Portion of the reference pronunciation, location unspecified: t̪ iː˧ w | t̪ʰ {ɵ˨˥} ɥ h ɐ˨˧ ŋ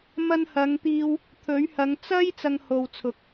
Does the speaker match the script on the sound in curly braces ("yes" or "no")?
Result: yes